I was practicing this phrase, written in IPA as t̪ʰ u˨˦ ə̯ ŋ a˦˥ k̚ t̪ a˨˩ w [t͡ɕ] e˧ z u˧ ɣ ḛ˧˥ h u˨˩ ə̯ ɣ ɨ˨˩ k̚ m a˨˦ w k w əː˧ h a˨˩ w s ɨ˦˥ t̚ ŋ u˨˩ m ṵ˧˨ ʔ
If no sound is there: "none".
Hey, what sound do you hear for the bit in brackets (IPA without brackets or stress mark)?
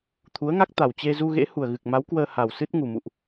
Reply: t͡ɕ